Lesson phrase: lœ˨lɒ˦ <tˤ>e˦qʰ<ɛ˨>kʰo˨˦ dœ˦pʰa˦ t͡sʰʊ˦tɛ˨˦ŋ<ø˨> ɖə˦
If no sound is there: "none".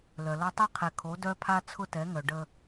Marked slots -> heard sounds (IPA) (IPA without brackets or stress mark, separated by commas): tˤ, ɛ˨, œ˨